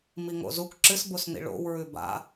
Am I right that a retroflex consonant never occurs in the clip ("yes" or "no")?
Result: no